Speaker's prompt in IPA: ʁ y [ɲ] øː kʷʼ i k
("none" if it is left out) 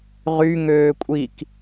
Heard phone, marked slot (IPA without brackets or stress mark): ŋ